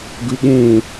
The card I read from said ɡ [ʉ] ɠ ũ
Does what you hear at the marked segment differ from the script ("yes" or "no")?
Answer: no